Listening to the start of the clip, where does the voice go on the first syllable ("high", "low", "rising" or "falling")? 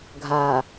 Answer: low